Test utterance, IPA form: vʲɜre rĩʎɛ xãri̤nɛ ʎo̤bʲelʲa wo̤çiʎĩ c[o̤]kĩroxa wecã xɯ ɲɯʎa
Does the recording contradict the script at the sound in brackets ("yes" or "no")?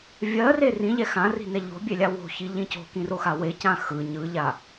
no